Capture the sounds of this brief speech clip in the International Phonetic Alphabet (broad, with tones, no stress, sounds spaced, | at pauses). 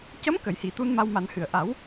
c ə˧˥ m k ə˨˩˨ j h i˨˩˨ t̪ u˧ n m a˧ w m a˨˩˦ n h ɨ˨˩ ə̯ ʔ a˨˩˦ w